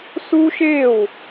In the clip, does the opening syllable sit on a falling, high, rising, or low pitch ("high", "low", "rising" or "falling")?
high